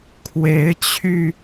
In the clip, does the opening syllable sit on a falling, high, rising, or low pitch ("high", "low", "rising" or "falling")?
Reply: rising